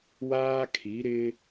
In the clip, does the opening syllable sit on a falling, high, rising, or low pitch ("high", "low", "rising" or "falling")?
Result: high